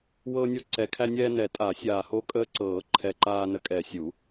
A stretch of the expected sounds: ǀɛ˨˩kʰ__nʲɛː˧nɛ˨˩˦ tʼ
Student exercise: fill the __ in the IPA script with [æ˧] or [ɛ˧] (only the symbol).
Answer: æ˧